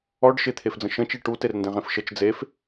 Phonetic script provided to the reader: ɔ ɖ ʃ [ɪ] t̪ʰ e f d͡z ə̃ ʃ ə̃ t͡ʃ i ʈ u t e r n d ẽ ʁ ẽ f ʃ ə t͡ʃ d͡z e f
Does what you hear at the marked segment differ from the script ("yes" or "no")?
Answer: no